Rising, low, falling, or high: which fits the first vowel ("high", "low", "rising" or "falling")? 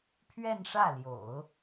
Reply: falling